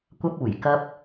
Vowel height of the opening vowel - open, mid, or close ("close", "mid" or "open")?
open